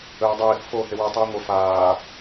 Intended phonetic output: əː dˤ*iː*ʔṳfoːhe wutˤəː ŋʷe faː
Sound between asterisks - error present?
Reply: no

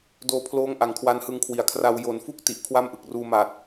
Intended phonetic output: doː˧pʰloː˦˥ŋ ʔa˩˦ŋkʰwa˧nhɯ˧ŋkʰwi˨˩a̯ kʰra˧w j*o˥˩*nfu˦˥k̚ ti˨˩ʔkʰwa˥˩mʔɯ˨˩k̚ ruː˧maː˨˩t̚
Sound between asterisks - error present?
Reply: yes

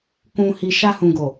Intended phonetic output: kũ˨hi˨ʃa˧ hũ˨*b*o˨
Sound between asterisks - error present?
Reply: yes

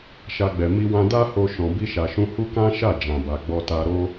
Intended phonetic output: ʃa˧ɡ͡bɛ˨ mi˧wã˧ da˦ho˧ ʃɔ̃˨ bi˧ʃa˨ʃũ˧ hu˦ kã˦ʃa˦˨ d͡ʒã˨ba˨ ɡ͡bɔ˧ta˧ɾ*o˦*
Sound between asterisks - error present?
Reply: no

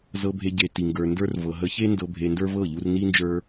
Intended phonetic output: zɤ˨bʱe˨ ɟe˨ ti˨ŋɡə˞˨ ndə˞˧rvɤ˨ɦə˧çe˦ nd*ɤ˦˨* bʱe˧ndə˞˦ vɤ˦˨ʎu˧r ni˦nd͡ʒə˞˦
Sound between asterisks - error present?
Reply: yes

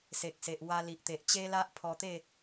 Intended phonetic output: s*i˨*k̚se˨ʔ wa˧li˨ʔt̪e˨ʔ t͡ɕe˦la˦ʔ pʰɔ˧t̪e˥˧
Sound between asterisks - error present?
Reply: yes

